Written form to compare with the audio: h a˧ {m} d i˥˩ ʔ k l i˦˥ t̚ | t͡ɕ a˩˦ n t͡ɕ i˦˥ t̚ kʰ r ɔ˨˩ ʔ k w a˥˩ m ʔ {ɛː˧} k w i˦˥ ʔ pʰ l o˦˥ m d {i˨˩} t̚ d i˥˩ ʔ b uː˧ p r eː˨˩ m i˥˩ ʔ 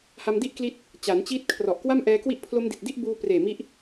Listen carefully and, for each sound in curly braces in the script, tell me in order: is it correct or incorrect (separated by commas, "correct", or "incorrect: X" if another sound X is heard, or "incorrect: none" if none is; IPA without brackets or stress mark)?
correct, correct, correct